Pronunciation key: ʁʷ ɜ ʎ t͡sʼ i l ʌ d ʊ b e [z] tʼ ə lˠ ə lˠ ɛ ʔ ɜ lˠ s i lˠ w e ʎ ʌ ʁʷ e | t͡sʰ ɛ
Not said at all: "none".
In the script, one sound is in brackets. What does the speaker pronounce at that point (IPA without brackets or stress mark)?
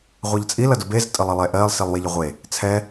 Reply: z